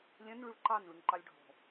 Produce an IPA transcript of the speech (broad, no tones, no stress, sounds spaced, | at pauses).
lʲ ɛ̃ n ɭ y ɭ ǃ ɑ n ɭ y ŋ ǃ ɑ lʲ ɖʱ ɔ̤